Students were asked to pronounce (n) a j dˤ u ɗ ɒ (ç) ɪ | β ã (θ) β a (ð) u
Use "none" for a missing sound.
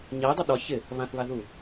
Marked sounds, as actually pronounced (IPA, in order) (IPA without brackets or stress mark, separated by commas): ɲ, ç, θ, ð